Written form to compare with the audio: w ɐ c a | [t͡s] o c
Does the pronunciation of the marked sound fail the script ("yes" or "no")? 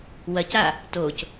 yes